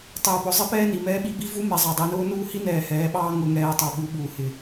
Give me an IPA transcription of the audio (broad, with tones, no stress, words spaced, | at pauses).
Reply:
tˤɪː˨pʊ˨ zˤɪ˦pɛː˦ni˨ mɛː˦ɓi˦bi˦ vu˦mɛ˨ zˤɑ˨dˤi˨nʊː˦ nuː˦ hi˦nɛː˨ hɛː˨˦ɓɑː˦ ŋʊ˨ ŋɛː˨tˤɑ˨ ɓu˨˦ɓuː˨ hɪ˨